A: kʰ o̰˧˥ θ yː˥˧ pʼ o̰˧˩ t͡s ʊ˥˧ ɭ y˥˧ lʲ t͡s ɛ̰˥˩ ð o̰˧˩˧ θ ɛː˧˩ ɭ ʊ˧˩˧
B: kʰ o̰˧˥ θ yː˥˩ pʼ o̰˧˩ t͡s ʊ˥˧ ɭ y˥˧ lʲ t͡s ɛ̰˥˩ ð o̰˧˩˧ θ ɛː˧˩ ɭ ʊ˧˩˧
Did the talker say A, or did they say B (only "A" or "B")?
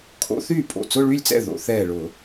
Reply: B